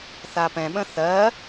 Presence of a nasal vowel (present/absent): present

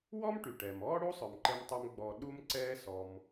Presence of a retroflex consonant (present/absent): present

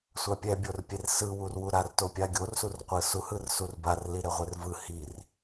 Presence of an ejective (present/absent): absent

